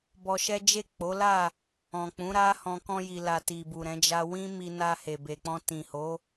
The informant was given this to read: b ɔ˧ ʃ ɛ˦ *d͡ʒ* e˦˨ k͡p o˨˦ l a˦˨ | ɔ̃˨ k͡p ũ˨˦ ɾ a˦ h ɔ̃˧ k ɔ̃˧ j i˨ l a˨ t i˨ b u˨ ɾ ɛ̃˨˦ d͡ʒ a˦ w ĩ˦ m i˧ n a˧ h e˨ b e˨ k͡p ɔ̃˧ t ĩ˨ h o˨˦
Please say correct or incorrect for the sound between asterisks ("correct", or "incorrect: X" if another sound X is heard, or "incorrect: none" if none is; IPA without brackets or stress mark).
correct